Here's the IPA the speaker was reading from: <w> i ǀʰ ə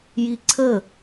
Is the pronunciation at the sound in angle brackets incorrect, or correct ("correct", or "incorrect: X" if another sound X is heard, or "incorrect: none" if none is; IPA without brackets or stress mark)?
incorrect: j